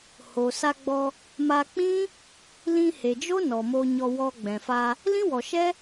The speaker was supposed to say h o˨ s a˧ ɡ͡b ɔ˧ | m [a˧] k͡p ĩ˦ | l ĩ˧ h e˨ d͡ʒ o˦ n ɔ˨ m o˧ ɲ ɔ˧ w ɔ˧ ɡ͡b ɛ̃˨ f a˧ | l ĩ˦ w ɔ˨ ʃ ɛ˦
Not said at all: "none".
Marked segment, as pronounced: a˧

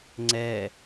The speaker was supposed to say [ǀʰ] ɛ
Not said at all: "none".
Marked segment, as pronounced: ŋ͡ǀ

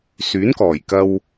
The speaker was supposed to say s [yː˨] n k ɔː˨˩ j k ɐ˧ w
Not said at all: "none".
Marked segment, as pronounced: yː˨˥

